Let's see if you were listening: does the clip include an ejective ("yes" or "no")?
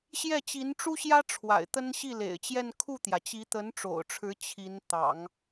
no